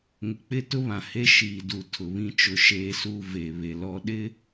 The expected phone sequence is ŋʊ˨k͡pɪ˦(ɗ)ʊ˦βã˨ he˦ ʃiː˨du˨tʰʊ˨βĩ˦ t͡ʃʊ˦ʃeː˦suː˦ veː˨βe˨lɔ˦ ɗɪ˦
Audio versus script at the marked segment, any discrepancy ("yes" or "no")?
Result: yes